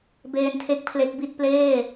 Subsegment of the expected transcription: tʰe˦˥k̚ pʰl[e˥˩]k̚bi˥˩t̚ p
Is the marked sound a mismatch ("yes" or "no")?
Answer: yes